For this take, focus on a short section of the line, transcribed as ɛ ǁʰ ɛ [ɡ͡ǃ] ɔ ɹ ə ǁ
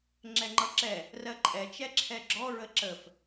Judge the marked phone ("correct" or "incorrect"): incorrect